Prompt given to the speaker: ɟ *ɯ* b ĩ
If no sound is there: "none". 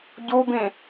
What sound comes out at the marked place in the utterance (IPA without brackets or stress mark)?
u